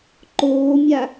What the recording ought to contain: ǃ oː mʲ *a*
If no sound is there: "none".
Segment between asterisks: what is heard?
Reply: a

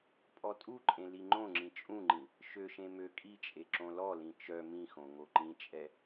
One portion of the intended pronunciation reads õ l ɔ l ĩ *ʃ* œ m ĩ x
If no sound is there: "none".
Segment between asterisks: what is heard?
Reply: t͡ʃ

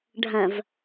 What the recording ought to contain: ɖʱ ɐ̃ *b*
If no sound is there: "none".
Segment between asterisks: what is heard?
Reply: v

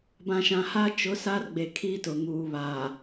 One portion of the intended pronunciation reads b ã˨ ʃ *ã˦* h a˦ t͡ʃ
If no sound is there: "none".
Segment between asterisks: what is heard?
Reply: ã˨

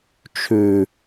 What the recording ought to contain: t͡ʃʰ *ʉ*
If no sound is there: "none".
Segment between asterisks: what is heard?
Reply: ʉ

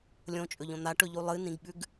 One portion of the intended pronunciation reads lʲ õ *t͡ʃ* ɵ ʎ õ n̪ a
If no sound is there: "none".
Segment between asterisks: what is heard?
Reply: t͡ʃʼ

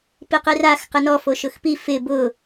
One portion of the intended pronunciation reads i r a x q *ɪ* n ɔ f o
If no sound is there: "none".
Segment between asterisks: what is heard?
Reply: ɪ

